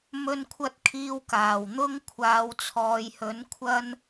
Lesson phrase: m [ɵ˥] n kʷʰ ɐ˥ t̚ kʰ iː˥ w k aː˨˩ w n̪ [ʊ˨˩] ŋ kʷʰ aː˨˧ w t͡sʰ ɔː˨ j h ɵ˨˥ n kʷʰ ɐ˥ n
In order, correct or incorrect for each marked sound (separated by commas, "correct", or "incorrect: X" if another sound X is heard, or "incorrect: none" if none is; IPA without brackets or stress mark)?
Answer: correct, incorrect: ʊ˥